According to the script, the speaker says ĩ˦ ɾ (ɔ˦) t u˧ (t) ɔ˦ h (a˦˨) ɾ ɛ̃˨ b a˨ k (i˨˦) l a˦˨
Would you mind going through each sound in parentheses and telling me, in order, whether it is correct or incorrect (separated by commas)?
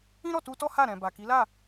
incorrect, correct, correct, correct